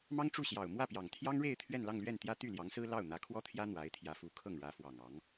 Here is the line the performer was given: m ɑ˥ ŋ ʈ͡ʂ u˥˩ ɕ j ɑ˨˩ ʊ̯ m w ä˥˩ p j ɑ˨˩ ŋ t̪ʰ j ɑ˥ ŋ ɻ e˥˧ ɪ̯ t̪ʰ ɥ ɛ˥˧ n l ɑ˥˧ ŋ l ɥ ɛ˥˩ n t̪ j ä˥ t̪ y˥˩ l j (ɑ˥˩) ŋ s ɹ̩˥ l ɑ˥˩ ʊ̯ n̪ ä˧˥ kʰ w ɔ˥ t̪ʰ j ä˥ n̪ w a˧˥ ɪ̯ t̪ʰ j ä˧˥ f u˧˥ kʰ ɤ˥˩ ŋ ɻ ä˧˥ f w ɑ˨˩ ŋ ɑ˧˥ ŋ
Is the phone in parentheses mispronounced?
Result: yes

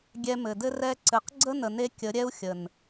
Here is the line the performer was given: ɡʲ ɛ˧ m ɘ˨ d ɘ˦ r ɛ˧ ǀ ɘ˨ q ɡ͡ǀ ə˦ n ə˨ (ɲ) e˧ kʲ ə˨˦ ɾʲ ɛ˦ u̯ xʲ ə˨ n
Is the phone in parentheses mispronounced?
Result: yes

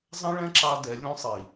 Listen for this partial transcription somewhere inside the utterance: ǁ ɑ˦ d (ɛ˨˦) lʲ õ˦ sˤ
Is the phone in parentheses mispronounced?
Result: no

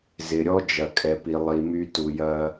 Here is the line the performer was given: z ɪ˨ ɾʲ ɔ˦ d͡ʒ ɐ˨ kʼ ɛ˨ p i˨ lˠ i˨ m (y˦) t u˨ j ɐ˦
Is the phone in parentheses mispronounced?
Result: no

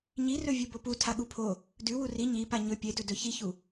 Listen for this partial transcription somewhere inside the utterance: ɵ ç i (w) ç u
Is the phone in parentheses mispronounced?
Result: yes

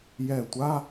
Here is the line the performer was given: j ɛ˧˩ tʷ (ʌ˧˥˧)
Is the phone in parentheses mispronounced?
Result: yes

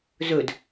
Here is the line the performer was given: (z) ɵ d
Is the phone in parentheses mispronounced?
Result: no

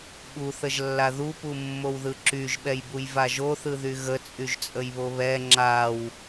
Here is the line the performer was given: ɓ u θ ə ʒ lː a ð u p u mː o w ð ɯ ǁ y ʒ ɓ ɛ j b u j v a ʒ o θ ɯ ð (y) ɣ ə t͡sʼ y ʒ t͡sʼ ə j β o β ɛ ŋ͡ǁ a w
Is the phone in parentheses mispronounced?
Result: no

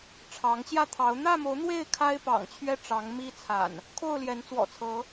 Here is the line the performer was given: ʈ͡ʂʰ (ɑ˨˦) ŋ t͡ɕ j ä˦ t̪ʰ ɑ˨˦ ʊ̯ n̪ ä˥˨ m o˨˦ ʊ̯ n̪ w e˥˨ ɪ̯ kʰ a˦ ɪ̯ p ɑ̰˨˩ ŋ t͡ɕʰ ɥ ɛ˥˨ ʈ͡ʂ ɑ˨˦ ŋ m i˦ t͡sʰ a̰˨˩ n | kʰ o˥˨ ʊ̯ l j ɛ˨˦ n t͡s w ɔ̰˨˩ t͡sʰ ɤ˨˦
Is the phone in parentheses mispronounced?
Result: no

